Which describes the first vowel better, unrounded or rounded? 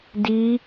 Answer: unrounded